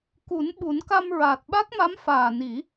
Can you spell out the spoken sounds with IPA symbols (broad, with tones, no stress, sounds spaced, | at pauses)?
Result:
k u˨˩˦ n ɓ u˨˩˦ n k a˧ m ɹ aː˨˩ t̚ ɓ a˦˥ k̚ m a˧˥ m f aː˨˩ n i˨˩˦